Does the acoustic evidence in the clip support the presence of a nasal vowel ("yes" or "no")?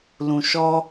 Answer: yes